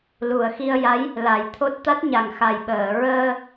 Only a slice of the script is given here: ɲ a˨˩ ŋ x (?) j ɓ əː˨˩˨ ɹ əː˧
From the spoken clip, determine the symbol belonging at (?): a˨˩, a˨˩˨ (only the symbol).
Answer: a˨˩